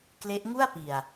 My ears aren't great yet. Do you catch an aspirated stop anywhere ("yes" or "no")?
no